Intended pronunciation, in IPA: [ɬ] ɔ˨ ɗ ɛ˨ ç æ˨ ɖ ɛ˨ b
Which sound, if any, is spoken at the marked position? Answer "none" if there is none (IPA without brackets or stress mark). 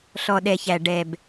ɬ